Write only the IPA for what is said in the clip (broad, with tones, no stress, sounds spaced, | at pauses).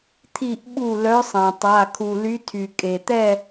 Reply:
t̪ʰ i˧˩ ʔ ɓ u˧˩ l œ˨˦ sˤ ã˩ tˤ a˩˧˩ kʰ u˩ l y˨˦ tʰ y˩ kʼ e˩ t̪ ɛ˥˨